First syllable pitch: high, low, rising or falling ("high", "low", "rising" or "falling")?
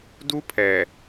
high